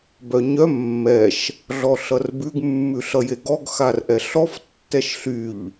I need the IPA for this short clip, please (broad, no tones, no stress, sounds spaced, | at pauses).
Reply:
b œ ɲ œ mː ɛ ʃ | ɮ ɔ ɬ ʌ r b ʉ ɡ mː ʉ ɬ ʌ j e ɡ ɔ ɡ x a r ʔ ɛ ɬ ɔ f tː ɛ ʃ ɬ y ʎ